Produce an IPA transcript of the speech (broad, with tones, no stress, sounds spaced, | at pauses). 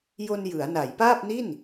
j o˧ n j ɯ˩˦ a̯ n a˩˦ j p aː˥˩ p̚ n i˥˩ n